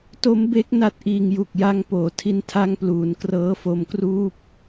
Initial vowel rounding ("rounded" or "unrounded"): rounded